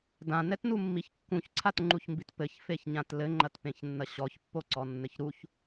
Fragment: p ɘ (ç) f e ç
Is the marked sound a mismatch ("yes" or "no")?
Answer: no